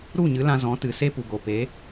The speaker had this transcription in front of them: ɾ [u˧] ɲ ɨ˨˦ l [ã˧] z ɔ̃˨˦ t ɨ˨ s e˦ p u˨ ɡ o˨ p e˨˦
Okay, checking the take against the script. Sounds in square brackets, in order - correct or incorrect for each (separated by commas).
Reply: incorrect, correct